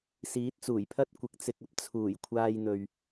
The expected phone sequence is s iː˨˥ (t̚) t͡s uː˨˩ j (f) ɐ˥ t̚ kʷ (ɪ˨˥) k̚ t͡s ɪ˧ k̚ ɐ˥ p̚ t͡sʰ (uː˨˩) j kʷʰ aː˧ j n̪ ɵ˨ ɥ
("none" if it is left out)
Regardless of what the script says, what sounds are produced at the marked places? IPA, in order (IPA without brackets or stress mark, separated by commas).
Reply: t̚, pʰ, ɪ˨, uː˨˩